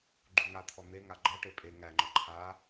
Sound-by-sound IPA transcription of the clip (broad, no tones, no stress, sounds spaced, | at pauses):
ɡ͡ǃ u ŋ a t̪ʰ ɔ n̪ e ŋ a ɡ͡ǃ ɔ ʈ e pʼ e ŋ æ ŋ͡ǃ ɔ ǃʰ a